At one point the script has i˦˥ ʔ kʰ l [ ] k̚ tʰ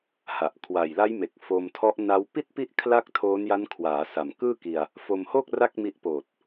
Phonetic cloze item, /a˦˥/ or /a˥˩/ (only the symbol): a˥˩